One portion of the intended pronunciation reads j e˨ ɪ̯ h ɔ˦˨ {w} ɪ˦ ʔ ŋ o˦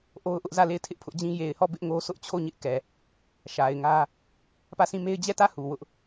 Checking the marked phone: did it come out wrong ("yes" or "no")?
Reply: yes